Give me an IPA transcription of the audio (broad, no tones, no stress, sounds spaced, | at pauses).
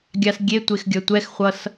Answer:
ɡʲ a s ɡʲ e tʷ e x ɡʲ ʌ tʷ ɛ x χʷ ʌ s